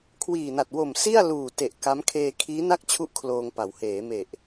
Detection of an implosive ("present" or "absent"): absent